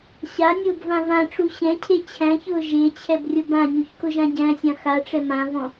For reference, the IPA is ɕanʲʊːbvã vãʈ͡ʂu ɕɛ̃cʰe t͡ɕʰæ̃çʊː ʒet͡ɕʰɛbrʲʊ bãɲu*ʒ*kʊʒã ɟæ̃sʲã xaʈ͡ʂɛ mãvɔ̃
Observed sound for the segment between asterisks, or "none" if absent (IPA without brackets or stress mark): ç